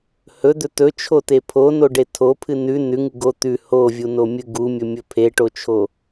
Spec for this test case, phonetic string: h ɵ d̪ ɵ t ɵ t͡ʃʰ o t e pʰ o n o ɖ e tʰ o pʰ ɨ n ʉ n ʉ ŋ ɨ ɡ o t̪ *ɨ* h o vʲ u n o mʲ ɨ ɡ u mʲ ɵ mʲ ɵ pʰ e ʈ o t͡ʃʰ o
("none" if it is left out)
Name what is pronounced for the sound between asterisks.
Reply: ʉ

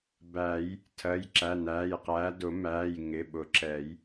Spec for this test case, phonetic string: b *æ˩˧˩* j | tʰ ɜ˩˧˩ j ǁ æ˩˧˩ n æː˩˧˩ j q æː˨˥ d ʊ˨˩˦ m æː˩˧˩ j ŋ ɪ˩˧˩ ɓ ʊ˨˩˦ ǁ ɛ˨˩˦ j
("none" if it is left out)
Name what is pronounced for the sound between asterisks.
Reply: æ˨˩˦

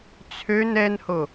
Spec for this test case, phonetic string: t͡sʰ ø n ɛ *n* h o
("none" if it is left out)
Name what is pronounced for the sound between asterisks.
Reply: n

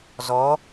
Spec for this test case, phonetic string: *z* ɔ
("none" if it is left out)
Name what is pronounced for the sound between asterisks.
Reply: z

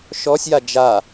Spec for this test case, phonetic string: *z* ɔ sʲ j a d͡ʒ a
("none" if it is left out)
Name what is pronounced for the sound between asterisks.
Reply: ʃ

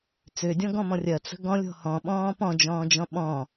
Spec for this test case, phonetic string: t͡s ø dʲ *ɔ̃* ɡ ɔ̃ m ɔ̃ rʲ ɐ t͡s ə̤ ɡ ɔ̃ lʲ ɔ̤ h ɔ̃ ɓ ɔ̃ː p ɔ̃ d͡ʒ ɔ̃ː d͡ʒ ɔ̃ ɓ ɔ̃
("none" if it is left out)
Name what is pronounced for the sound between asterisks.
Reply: ɔ̃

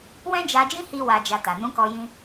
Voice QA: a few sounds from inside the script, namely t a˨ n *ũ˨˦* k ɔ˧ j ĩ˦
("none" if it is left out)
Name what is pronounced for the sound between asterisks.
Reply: ũ˨˦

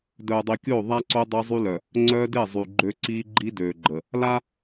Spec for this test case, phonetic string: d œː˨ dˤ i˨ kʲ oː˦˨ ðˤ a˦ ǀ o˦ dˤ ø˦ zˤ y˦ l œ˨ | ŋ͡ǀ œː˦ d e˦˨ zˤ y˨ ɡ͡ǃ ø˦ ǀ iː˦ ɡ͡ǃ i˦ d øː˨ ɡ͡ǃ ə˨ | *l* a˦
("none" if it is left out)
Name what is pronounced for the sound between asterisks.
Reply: l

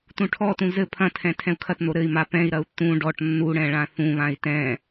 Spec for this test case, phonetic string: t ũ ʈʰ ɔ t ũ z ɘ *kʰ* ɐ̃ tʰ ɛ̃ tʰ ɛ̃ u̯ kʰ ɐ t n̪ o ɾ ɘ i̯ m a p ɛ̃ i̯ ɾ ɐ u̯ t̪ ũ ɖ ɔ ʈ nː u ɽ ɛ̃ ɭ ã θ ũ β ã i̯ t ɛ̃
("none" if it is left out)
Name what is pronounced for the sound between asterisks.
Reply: pʰ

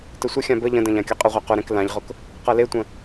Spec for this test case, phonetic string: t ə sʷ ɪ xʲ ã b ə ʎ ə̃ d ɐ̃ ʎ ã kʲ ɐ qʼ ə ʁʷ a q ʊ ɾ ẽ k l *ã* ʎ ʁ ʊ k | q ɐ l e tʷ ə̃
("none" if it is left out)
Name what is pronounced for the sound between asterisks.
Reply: ã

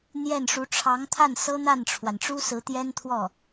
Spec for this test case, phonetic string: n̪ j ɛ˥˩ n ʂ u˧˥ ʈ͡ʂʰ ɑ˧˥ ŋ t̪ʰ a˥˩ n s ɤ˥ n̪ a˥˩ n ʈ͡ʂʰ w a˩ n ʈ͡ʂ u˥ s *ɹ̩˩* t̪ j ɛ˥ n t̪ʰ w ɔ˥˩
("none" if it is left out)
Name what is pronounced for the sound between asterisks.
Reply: ɹ̩˧˥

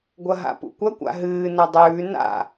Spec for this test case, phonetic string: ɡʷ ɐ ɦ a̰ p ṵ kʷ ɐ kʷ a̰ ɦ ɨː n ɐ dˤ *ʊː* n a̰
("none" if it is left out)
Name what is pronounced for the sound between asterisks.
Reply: ʉː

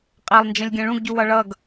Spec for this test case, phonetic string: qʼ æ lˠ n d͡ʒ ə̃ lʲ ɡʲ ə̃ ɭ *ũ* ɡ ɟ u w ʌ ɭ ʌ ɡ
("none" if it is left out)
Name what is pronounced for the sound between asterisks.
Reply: ũ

